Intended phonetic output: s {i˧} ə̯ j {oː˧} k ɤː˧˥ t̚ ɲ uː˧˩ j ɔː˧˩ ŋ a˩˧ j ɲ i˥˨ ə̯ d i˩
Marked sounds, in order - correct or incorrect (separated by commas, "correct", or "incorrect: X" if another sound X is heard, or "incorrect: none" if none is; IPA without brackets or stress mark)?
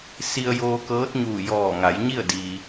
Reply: correct, correct